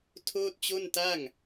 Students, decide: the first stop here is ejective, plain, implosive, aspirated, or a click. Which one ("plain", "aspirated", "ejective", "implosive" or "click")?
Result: aspirated